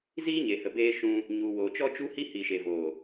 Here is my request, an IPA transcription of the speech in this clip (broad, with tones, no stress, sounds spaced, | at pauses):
z iː˦ ɲ e˨ h ə˨ b eː˧ ʃ ũ˧ | ɲ u˨ w oː˨ t͡ʃ ɔ˦ t͡ʃ u˦ h i˧ h i˨ ʃ e˨ v oː˨